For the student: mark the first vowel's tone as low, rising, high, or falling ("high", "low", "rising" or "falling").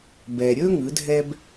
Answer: low